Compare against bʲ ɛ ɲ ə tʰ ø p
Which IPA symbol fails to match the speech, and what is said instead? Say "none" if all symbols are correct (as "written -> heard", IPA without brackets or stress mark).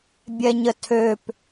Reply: none